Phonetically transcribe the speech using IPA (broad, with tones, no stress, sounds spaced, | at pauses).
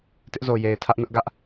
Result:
t ɪ˦ ʔ z o˨ j e˨ ɪ̯ tʰ ä˦ ʔ n ʊ˦ ʔ ɡ ä˦ ʔ